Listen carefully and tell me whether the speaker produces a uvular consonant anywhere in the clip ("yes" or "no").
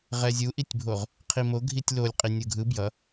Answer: yes